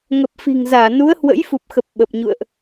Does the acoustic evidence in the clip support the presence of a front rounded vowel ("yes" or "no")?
no